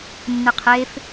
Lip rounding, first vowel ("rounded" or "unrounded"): unrounded